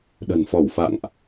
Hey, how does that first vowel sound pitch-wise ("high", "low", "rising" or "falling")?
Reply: low